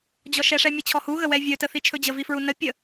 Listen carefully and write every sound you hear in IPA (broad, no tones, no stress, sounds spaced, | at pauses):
d͡ʑ ɔ ʃ ɛ ʂ ɛ mʲ ə t͡ɕʰ ɔ h u ɣ ə w ɛ vʲ ɵ t ə θ i t͡ʃʰ ɵ d͡ʑ ə v i f ɹ u n ə pʲ ə